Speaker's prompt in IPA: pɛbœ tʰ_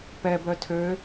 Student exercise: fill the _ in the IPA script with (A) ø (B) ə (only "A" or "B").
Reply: A